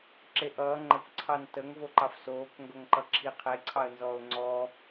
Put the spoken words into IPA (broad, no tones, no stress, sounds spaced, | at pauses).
ǁ e ʔ ʌː ŋ͡ǃ ə kʷ ǀʰ ɑ n t ə ŋ v o ǃ ɑ f s oː k ŋ ɡ o ŋ ǃ ʌ ǁʰ i qʰ e ǀʰ ɑ ə̯ n z ɔː ʊ̯ ŋ͡ǀ ɔː